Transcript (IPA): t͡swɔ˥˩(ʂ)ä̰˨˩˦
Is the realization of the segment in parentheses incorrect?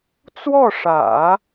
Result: no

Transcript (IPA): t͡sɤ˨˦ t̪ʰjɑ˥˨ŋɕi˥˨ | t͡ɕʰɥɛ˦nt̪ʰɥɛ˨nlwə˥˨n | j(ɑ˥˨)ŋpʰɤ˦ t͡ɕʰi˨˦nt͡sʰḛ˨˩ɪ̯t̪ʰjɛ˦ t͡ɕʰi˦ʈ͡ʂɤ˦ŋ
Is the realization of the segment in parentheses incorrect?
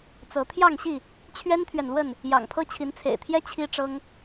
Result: yes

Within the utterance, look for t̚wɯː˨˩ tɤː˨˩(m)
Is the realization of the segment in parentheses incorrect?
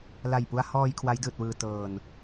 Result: yes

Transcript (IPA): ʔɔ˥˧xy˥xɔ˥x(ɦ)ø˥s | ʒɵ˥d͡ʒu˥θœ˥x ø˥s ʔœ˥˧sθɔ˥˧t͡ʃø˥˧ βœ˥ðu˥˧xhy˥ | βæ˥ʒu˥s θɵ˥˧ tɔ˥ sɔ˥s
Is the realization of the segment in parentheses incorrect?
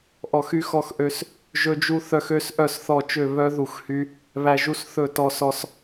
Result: yes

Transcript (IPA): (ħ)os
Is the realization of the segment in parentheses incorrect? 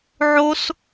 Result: yes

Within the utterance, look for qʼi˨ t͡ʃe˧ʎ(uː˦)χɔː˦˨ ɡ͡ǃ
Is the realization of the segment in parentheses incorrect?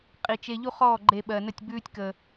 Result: yes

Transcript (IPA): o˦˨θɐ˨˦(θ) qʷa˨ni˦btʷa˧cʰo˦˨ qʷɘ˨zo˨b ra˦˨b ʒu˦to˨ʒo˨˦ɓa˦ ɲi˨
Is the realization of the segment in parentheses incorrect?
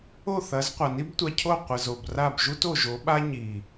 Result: yes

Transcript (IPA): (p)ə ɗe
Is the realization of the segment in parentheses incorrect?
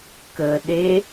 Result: yes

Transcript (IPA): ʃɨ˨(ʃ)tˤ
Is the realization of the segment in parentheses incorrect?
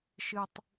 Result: yes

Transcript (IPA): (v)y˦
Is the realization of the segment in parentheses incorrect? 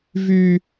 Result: no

